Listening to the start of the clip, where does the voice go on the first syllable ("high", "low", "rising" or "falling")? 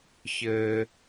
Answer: low